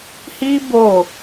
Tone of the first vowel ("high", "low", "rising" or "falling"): high